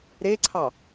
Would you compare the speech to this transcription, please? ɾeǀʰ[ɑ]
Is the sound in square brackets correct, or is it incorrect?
correct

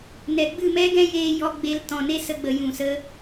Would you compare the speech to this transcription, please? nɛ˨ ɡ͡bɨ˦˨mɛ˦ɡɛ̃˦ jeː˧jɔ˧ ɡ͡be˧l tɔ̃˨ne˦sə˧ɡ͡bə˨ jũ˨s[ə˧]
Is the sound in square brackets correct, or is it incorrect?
correct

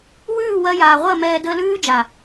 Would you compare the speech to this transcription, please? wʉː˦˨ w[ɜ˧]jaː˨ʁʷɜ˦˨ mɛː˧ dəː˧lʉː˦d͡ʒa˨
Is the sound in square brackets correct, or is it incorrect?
correct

